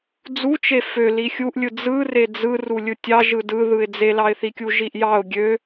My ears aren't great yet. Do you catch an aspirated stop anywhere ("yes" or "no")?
no